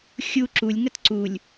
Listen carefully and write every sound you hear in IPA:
xʲ u ǁ u lʲ ŋ ə t ǀ u lʲ

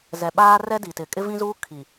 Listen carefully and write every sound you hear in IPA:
z ɛ˨ ɓ aː˦ r ɛ˦ d i˨ t ɪ˨ kʼ ɪ˦ v ĩ˦ z uː˦ kʰ i˨

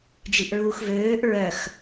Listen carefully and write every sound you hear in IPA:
d͡ʒ i ʔ ɹ uː x v øː ʔ ɹ œ x

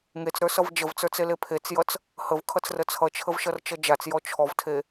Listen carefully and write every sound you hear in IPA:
ŋ e t͡s ɾ ə˞ s ʌ v d͡ʒ ə v t͡s ə˞ t͡s e l e pʰ e t͡s j ʌ t͡s | h ə v kʰ ʌ t͡s r ə t͡sʰ ʌ t͡ʃʰ ə v ʃ ʌ r t͡ʃ ʌ d͡ʒ a t͡s j ɔ t͡ʃʰ ɔ v tʰ e

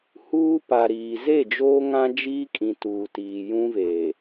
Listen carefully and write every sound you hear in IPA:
h uː˦ p a˨ ɾ iː˨ z e˦˨ d͡ʒ oː˦ ŋ ã˦ d͡ʒ iː˦ kʼ ĩ˨ t uː˨ t iː˨ j ũ˦ v e˨

